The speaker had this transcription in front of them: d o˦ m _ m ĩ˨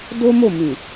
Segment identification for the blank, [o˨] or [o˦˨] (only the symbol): o˦˨